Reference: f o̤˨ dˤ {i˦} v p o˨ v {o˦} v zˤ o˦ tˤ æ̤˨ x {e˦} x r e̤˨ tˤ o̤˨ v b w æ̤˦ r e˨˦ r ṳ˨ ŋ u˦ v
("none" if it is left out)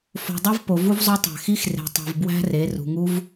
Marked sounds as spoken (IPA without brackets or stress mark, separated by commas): e˦, u˦, i˦